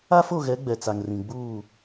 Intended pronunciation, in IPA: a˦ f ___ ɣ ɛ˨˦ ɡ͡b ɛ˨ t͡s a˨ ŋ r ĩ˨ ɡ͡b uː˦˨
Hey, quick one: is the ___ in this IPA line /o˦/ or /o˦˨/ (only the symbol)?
o˦˨